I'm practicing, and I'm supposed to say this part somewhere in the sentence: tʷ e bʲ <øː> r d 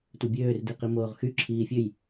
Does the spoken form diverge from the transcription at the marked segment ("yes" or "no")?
no